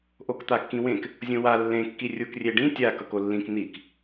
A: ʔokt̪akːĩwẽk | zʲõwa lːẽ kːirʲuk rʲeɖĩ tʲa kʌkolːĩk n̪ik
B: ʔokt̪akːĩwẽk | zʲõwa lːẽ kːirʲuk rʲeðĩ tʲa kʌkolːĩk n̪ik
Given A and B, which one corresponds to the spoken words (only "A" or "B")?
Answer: A